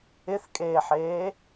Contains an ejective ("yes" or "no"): yes